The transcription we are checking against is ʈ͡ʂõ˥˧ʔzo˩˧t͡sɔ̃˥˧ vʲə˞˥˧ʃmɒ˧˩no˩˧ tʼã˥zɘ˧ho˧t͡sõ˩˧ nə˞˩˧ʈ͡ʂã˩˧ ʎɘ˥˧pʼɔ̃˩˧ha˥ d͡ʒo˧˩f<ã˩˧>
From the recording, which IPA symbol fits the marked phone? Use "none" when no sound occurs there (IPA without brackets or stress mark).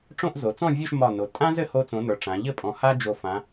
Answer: ã˩˧